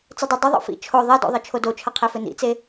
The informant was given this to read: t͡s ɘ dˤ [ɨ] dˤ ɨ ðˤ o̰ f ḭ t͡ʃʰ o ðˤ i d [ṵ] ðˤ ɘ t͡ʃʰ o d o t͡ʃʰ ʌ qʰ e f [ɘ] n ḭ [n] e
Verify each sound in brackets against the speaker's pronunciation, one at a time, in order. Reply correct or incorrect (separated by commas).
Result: incorrect, incorrect, correct, incorrect